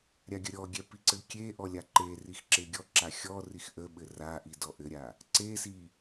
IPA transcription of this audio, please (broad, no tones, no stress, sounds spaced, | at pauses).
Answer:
ɾʲ a ɡʲ ə ɾʲ ɔ ɡʲ ɛ p i ǀ ɘ kʲ e ʔ ɔ lʲ a ǃ e r i x ǁ e ɡʲ ɔ ǁ a xʲ ɔ r i x ʔ ə ɓ ɘ r a ʔ i d ɔ ʔ ɘ ɾʲ a | ǀ e s i